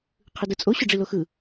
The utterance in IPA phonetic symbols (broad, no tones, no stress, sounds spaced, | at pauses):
qʰ ɯ d ɯ t͡sʼ o ɕ ʊ ɖ͡ʐ i l o x ɯ